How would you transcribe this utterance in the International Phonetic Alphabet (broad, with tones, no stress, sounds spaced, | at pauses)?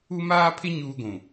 u˦ m aː˦ pʰ ɪ˦ ɲ uː˦ ɡʷ ũ˨